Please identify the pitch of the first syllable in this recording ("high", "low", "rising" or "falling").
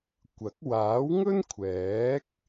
rising